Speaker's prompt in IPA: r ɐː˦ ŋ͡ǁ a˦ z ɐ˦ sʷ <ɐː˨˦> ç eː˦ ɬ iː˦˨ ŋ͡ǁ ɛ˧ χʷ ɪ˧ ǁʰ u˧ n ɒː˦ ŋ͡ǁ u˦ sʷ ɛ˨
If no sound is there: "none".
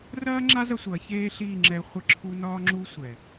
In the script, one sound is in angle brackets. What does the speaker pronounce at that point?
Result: ɐː˨˦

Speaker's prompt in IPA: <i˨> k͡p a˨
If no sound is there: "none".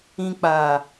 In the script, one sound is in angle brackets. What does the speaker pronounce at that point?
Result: ĩ˨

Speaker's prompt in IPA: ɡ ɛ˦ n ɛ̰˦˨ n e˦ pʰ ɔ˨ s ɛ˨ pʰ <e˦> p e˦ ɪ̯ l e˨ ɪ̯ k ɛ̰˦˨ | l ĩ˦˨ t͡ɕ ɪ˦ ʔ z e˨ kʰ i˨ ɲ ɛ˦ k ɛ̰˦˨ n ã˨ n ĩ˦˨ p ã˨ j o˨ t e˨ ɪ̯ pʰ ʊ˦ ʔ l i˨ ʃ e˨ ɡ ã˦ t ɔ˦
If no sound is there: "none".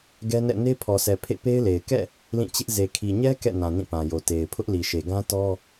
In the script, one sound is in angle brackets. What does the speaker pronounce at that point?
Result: ḛ˦˨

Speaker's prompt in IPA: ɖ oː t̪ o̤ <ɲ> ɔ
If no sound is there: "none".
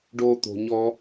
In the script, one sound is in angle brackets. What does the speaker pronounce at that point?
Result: ɲ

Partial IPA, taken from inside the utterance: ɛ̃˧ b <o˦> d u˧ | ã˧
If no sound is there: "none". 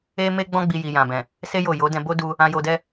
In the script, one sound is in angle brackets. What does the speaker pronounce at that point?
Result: o˦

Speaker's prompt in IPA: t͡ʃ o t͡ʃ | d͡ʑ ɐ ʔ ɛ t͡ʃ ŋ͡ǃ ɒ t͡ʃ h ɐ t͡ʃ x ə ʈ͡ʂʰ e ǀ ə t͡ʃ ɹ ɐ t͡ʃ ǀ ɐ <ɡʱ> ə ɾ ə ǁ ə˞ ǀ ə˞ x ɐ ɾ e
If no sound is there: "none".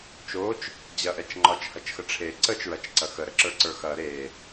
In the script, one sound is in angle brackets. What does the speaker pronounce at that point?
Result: x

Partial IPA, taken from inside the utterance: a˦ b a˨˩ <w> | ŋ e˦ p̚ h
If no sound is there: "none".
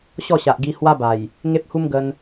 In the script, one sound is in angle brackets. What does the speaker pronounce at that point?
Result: j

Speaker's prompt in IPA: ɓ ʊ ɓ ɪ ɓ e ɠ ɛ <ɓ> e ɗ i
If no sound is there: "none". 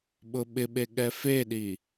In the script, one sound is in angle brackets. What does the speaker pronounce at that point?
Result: f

